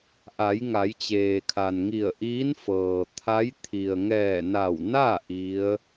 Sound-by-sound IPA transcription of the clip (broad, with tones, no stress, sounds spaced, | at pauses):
ʔ a˩˧ j ŋ a˩˧ j t͡ɕ eː˩ kʰ a˩ n ŋ i˧˩ ə̯ ʔ iː˧˥ n f ɤː˩ t̪ʰ a˧˥ j t̪ʰ i˩ ə̯ ŋ ɛː˧˩ n a˧˩ w n a˥˨ ʔ i˧˥ ə̯